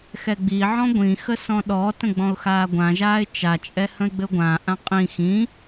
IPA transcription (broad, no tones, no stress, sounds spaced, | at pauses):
x ɛ ɡ͡b i ʕ ɔ̃ ɡʷ ĩ x ə s ɔ̃ ɗ ɔ t ə̃ ɡ͡b ɔ̃ ʊ̯ x aː ɡʷ ã ʒ aː ɪ̯ t͡ʃ a t͡ʃʼ ɛ h ə̃ ɪ̯ ɡ͡b ɘ ʊ̯ ɡʷ ãː ʔ ã qʼ ĩ x ĩ